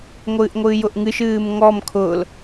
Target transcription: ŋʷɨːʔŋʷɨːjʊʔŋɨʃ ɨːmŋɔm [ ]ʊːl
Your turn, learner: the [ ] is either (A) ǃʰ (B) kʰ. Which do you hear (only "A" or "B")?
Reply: B